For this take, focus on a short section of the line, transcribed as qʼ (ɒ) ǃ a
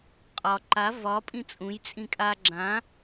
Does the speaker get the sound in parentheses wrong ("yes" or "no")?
no